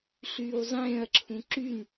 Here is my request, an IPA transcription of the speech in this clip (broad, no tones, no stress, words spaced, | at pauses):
ɬyːwzˤẽːɐ̯ǁʰũ ǁyn